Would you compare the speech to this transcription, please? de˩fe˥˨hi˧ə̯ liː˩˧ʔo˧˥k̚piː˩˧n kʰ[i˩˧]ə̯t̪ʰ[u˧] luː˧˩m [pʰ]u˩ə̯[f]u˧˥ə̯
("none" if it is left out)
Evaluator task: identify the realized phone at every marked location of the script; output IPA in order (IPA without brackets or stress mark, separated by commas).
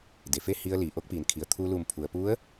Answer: i˩, uː˧, pʰ, p